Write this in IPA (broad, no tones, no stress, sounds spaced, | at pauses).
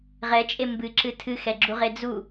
ʁ ɛ t͡ʃʼ e m b ɨ ǁ ɨ tʰ ɨ x ɛ ɡ͡ǁ u ʁ e d͡z u